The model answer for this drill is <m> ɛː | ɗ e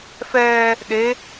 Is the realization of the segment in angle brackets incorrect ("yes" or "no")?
yes